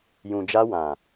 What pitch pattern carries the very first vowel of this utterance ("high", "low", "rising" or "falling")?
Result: low